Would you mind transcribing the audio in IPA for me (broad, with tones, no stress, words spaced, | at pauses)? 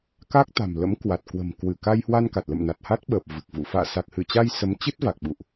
ka˦˥k̚ t̪a̤˨˩mlə̰˧˥mkwa˨˩t̚kwə̤˨˩m kwɨ˧˩ka˧jhwa˧nka˨˩t̚ lə̰˧˨mna˨˩t̚ha˦˥t̚ɓəː˨˩p̚ vɨ˨˩k̚vṵ˧˨ fa̰ː˧˨sa˨˩k̚hɨ˧˩t͡ɕa˧j sə˨˦mt͡ɕɨ˦˥t̚va˨˩k̚ ɓṵ˧˨ʔ